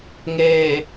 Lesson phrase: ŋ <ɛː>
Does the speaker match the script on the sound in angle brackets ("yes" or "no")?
no